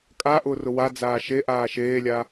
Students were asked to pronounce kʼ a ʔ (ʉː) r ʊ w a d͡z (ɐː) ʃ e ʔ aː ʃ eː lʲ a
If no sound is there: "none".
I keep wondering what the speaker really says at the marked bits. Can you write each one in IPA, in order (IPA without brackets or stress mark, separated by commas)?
ʊː, aː